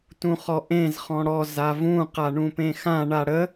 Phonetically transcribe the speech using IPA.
t ũ χ ɔ ʔ ẽ z χ ɔ̃ ɽ ɔ z a v ũ q a ɳ ũ p ẽ x ã ɳ a ɽ ə

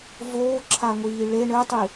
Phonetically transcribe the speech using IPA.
v oː ǁʰ a ŋʷ iː ɭ e ɳ ɘ tˤ i

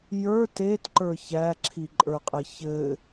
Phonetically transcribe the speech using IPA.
j ə˞ t e t ǃ ə˞ ç æ ǁʰ i ǃʼ ə˞ qʼ ɘ ç ɘ

